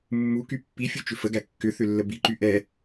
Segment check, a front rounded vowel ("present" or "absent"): present